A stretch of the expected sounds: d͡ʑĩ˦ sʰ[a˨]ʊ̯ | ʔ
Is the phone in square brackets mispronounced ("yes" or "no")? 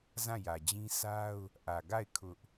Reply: yes